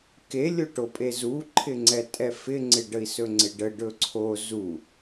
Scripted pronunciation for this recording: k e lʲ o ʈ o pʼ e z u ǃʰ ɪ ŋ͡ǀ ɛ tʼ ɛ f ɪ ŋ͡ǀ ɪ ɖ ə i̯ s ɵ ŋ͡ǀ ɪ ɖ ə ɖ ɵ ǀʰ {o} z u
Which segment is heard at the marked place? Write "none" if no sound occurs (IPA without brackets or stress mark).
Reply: o